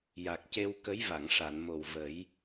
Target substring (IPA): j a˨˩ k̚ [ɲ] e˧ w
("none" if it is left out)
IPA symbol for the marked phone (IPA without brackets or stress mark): c